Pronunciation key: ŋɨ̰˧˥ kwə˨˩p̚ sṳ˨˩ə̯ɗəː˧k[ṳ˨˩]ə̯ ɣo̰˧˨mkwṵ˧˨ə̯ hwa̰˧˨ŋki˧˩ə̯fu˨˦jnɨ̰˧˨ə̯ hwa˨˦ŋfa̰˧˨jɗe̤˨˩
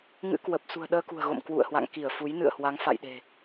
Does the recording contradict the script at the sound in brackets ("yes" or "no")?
no